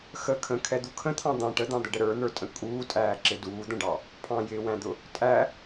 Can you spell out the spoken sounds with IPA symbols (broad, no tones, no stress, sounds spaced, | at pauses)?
x ə kʰ ə̃ kʰ ɛ d̪ u kʰ ə̃ t̪ʰ ɑ̃ d̪ ɑ̃ ʈ ə d̪ ɑ̃ d̪ ə ɖ ə ɾ ə˞ n̪ ə˞ tʼ ə̃ kʼ uː tʼ æː ǁ ɪ d uː d̪ ə̃ ɖ ɑ | pʰ ɑ̃ j ɪː w æ̃ d̪ ʊ | tʼ æ